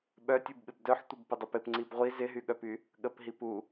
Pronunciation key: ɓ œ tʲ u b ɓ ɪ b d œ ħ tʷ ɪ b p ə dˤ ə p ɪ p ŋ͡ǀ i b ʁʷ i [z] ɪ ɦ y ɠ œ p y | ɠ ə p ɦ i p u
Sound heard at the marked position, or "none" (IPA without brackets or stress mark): z